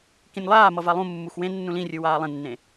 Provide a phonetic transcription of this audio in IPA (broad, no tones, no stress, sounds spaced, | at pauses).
k ĩ nʲ lˠ aː m ʌ v a lˠ ũ mː u x w ẽ nː ũ l ĩ rʲ ɯ w aː lˠ ẽ nː ẽ